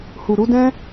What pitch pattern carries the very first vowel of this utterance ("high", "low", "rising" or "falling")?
low